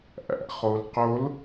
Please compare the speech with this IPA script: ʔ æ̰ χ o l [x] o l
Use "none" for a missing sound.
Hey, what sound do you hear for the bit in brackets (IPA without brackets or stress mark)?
q